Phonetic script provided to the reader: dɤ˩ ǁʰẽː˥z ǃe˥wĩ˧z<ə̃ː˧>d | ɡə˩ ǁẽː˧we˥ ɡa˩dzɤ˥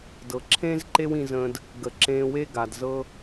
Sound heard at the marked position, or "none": ə̃ː˧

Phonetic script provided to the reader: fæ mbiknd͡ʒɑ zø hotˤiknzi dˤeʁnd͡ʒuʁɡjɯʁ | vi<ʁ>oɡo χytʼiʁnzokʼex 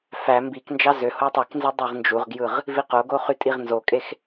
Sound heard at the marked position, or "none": q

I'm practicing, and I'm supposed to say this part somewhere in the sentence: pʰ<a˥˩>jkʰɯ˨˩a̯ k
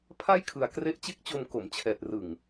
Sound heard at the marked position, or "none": a˥˩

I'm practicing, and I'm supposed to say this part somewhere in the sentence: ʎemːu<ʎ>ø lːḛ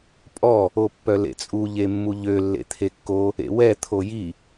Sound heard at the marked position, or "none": ʎ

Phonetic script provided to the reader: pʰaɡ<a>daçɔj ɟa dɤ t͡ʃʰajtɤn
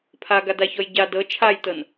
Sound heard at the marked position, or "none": a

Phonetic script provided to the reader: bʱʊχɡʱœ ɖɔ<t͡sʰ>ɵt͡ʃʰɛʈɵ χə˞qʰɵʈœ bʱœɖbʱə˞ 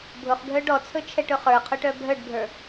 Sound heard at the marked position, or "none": t͡sʰ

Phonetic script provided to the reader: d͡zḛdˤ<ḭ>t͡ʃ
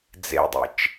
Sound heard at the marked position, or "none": ḭ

